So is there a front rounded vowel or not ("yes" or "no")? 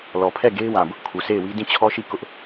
no